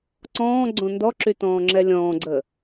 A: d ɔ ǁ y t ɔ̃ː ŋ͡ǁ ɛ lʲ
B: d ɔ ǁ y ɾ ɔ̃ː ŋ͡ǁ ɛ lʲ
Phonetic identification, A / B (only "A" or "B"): A